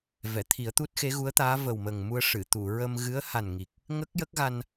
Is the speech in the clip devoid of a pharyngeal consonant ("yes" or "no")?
yes